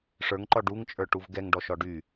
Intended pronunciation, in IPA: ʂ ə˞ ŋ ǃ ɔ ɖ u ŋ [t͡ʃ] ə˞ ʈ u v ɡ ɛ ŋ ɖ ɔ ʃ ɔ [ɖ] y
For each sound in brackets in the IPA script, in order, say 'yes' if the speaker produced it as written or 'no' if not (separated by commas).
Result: no, yes